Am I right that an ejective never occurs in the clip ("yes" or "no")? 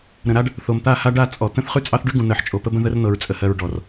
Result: no